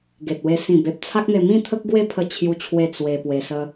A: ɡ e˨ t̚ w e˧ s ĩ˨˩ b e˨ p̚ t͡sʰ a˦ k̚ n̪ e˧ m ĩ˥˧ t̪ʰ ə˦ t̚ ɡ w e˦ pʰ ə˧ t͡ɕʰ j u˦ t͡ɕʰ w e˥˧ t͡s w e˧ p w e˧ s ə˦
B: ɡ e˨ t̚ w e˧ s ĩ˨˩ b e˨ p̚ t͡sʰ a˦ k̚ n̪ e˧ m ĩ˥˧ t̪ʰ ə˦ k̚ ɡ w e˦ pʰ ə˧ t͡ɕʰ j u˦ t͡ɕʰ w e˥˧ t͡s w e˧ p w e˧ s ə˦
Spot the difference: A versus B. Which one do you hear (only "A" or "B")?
B